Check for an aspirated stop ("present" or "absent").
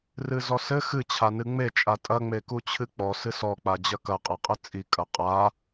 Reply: present